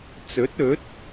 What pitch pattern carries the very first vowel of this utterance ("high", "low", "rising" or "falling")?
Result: rising